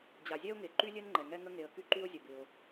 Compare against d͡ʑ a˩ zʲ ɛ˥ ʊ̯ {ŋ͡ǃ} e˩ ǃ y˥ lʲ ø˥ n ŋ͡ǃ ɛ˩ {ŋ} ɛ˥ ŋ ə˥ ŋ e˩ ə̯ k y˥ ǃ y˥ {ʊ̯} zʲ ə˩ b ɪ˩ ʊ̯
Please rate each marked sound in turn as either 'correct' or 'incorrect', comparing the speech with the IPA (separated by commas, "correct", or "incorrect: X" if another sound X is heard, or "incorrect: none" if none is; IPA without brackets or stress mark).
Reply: incorrect: ŋ, correct, correct